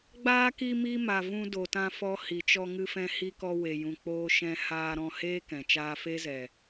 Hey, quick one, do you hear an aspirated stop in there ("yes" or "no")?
no